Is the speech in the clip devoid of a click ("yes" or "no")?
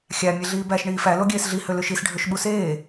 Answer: yes